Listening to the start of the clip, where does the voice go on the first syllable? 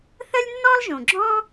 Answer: high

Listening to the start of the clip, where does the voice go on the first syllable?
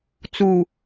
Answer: low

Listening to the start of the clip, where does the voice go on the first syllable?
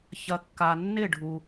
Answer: low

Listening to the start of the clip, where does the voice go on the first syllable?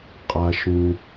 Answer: high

